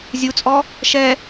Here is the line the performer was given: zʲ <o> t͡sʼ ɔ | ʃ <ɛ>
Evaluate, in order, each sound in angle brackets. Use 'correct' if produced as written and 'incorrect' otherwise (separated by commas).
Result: incorrect, correct